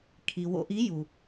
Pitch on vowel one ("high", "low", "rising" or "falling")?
low